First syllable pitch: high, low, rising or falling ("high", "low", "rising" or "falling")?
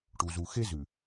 low